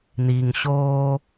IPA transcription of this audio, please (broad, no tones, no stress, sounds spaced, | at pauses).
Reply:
n̪ i ŋ ɕ oː